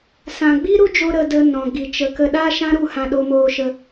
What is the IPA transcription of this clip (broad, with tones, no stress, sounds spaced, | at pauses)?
s ã˨ ɡ͡b i˦ ɾ u˦ d͡ʒ o˧ ɾ ə˧ d ə˧ n ɔ̃˨ ɡ i˨ t͡ʃ ə˧ k ə˦ ɗ a˦ ʃ ã˦ ɾ u˧ h ã˧ ɗ o˧ m oː˧ ʃ ə˧